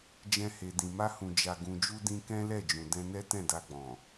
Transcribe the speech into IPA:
d͡ʒɛ̃˧he˨dĩ˨ ma˧hũ˨ d͡ʒa˨ɡũ˨d͡ʒu˧ dĩ˧kɛ̃˦ lɛ˦˨d͡ʒũ˨ dɛ̃˧nɛ˦tɛ̃˦˨ da˧ɡ͡bɔ̃˨

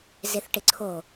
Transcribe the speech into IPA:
zeθʈɪǀʰo

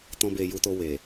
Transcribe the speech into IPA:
tɔ̃˧be˨ ju˧to˧ we˨

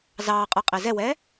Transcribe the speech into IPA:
zɑːqʼə˞ qʼezɛwɛː

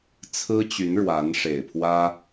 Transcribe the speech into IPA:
t͡sʰɹ̩˥t͡ɕy˧˥n ɻwa˧˥nʂe˨˩ɪ̯pʰwä˥

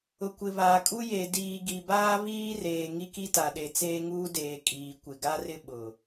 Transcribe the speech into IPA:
ʊ˨kʷɪ˨βaː˨kʼu˦ je˨ diː˨ɡi˨baː˦ βiː˦reː˨ ŋi˦ki˦ta˨ɗe˨ t͡seː˦ŋuː˦deː˨ kʼiː˨kʷɪ˨ɡa˦rɪ˦ ɓʊ˨

